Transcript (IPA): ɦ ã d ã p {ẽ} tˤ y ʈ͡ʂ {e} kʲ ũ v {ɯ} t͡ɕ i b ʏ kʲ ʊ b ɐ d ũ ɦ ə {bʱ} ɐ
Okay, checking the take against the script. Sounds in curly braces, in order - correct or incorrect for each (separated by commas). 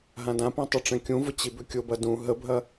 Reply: incorrect, incorrect, incorrect, correct